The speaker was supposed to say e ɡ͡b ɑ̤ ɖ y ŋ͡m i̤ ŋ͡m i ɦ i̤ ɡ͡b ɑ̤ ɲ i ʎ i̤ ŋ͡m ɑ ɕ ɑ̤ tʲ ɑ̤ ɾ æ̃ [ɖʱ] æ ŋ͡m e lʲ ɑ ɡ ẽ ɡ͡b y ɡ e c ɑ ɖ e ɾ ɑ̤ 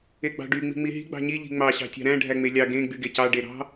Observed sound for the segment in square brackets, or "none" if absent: ɖʱ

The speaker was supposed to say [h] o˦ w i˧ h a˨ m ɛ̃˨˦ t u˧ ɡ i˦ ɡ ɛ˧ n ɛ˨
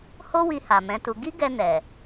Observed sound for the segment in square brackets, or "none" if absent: h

